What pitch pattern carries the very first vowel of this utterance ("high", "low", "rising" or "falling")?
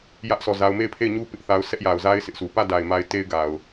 high